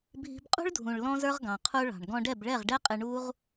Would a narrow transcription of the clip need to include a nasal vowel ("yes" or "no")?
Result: yes